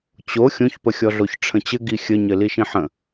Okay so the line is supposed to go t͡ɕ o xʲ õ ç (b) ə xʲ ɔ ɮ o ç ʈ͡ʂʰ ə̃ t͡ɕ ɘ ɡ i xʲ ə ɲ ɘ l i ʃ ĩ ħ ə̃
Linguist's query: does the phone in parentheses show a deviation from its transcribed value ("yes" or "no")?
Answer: yes